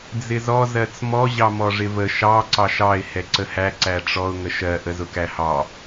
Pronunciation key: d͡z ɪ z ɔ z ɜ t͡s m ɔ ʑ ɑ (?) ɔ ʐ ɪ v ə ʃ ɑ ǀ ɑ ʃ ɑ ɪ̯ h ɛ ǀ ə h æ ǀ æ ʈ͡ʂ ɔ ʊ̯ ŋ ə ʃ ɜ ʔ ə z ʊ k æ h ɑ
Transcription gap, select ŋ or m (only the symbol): m